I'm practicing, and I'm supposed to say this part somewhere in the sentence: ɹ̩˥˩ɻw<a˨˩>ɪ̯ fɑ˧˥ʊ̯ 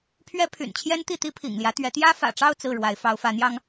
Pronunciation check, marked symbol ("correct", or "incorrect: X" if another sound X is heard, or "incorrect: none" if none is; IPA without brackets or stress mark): incorrect: a˧˥